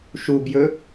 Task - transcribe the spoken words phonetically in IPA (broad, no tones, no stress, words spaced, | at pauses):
ʃubjɵ